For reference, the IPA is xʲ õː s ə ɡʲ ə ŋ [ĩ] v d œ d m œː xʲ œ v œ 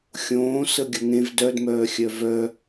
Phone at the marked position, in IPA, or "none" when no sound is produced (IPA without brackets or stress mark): ẽ